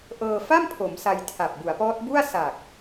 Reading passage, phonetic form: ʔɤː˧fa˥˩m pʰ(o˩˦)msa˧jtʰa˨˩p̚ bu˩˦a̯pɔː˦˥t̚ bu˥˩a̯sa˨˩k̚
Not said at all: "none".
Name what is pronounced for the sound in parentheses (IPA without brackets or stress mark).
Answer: o˩˦